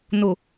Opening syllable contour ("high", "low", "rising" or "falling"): low